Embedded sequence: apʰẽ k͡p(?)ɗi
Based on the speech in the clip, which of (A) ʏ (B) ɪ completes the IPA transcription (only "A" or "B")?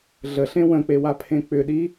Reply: A